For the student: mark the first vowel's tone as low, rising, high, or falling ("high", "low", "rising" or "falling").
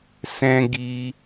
high